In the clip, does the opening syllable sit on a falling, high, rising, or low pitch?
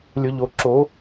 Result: low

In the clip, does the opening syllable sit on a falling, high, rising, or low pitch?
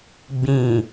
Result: low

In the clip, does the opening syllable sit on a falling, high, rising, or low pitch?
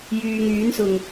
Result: low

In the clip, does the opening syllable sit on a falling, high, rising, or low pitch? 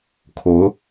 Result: rising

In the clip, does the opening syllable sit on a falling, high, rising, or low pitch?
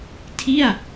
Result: falling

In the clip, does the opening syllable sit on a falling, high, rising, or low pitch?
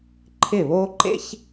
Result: falling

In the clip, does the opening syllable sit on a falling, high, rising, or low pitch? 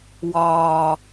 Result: low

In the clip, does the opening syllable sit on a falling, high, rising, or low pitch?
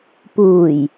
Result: low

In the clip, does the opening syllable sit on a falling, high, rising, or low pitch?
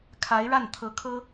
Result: rising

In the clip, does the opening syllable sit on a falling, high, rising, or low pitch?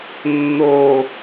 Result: falling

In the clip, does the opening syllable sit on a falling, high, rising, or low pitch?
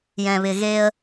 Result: low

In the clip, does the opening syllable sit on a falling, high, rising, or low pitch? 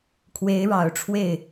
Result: rising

